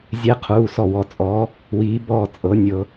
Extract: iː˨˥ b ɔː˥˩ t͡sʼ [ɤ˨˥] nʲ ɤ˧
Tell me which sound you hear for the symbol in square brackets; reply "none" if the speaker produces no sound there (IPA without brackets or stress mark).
ɤ˨˥